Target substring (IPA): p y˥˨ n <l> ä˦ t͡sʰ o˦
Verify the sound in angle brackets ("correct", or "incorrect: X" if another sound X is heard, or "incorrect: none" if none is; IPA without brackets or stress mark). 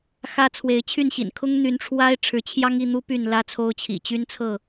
correct